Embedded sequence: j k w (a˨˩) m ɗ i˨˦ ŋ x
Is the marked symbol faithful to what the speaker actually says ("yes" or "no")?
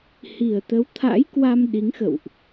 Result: no